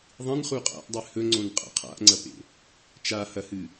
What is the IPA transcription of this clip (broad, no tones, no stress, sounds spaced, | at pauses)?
ðˤ ĩ n χ u qʼ a̰ ʔ dˤ ɨ h ɵ ŋ͡ǀ õ n qʼ a̰ qʰ a̰ ʔ ŋ͡ǀ ɐ p ḛ | t͡ʃ a h ɐ h ɨ